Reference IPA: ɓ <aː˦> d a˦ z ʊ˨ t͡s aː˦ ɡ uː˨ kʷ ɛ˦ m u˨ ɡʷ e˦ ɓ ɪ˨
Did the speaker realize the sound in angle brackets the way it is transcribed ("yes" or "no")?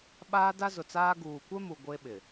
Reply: yes